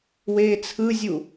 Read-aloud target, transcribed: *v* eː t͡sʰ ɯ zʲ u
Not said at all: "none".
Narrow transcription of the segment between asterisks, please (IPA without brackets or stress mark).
w